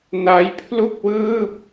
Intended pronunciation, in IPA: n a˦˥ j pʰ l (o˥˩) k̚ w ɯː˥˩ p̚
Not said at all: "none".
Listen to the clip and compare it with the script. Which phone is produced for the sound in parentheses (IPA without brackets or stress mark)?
u˥˩